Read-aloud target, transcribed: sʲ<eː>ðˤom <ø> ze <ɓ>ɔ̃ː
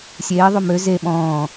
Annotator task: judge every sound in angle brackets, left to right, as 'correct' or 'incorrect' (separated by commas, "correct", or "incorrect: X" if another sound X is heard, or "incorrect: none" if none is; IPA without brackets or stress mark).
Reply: correct, correct, correct